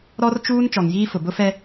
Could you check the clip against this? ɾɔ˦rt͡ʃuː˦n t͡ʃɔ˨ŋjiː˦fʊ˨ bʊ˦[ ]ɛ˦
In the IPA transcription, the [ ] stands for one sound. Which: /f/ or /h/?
f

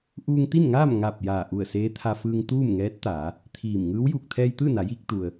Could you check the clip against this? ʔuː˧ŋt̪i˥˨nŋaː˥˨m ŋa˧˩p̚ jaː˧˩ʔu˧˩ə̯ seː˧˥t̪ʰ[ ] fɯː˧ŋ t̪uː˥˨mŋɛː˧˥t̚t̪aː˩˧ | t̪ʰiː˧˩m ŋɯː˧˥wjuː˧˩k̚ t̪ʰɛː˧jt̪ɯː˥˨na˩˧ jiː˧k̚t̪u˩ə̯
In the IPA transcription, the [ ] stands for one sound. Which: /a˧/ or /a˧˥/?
a˧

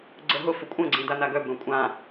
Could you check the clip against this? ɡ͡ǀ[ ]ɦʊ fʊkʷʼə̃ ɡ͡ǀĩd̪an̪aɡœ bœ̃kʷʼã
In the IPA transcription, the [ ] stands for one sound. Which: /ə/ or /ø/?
ə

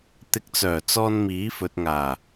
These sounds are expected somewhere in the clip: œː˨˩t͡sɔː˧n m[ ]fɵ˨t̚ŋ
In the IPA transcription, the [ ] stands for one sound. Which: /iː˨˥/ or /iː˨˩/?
iː˨˥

